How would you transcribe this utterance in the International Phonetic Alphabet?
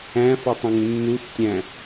æ̃fotˤɛ̃ŋ nːuθtʲæ̃

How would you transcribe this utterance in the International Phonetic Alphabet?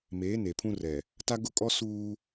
meː˨˦ne˨pʰũ˦rɛ˨ | ta˦ɡʊ˦kʼɔ˦ suː˦

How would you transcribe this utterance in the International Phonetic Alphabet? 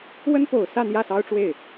wə˥npo˨˩ʊ̯sä˥˧ n̪jä˥˩sɑ˥ʊ̯ʈ͡ʂwe˥˩ɪ̯

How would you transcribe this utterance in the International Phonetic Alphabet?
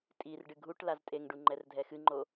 tʼir ɖɨɡʱuʈ laztʼeŋɖu ŋ͡ǃɛrdʱɛxɨŋ͡ǃo

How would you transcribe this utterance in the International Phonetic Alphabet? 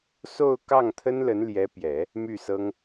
so˥˧ʊ̯ kɑ˥˩ŋt̪ʰə˥n lə˧˥nljɛ˧˥pjɛ˨˩˦ | my˥˩sɤ˥ŋ

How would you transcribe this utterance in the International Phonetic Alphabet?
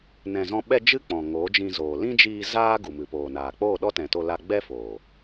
nɛ̃˧zɔ̃˦ ɓɛ˧ d͡ʒɨ˦k͡pɔ̃˨ ŋo˨˦ d͡ʒĩ˧zoː˨ lĩ˦d͡ʒiː˧ zaː˦ ɡu˨mɨ˨poː˨naː˨ k͡poː˦˨ɗɔ˦tɛ̃˨to˧ la˧ ɡ͡bɛ˦foː˨

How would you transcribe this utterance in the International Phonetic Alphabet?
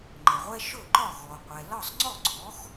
ŋ͡ǃə˩ʁʷɛ˥ ʃɵ˥˩ǃɒ˥˩ ɣɔ˩qʷɛ˩ lɒ˥˩sˤŋ͡ǀɔ˥˩ ɡ͡ǀɔ˩˥x

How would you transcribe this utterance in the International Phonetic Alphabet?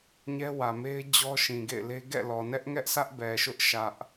ɲɛ˦wä˨me˦ɪ̯ d͡ʑɔ˦ʃĩ˨ɡḛ˦˨ɪ̯le˦ ɡɛ̰˦˨lɔ˨ nɛ˦ʔŋɛ˦ʔsʰä˦ʔ bɛ˨ʃʊ˦ʔ ʃä˦ʔ

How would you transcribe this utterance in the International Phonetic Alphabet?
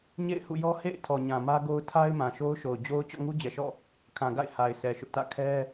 ɲḛ˦˨ɪ̯hṵ˦˨jɔ˦ hḛ˦˨ɪ̯ tʰɔ˨ɲã˨mä˦ɡo˦ʊ̯ tʰa˦ɪ̯ mã˨ʃo˦ʊ̯ʃo˨ʊ̯ d͡ʑo˦ʊ̯ t͡ɕɔ̰˦˨ŋu˦d͡ʑɛ˨ʃɔ̰˦˨ | kʰã˨ɡa̰˦˨ɪ̯ ha˨ɪ̯sʰɛ˨ʃʊ˦ʔtä̰˦˨ kʰɛ˦

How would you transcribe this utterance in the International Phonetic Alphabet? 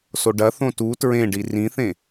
soɖɐθõ tu tɹẽɖi rĩθẽ

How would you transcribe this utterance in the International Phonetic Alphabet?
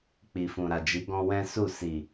k͡pi˨fũ˨ɾa˨ d͡ʒi˨˦ɡɔ̃˧ wɛ̃˦su˦˨ si˨

